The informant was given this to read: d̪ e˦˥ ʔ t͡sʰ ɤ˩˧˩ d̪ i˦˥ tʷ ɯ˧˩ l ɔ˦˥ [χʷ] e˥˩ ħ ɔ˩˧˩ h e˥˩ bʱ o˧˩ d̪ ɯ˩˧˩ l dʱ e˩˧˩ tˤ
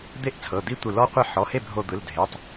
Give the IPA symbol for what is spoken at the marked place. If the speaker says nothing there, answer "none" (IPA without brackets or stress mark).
qʷ